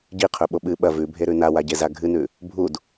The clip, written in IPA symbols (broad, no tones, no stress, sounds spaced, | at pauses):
ɟ i qʰ ɵ ɓ o ɓ ɨ ɓ ɐ v ʉ bʱ e ɾ ʉ n a w a ɟ e z a ɡʱ ɨ n ʉ | bʱ u d